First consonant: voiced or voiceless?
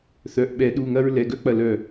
voiceless